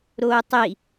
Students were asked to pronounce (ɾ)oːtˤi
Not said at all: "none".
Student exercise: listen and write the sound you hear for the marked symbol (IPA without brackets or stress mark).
ɾ